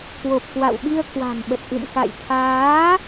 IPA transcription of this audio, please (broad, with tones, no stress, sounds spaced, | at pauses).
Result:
k w o˨˩ p̚ k w a̰˧˨ w ɓ i˧ ə̯ k w a̤˨˩ m ɓ ə˨˩ t̚ ʔ ɨ̰˧˨ m k a̰˧˨ j t̪ʰ aː˨˦